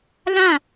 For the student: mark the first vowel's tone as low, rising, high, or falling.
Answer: falling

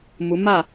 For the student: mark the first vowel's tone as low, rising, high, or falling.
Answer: rising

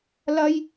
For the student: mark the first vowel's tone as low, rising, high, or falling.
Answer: high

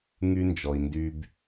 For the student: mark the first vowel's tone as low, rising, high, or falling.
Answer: high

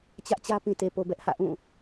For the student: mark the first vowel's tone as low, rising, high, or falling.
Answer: high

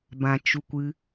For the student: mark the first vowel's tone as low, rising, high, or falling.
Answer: low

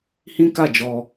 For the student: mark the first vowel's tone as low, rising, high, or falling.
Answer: high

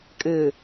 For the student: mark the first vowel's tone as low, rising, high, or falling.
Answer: low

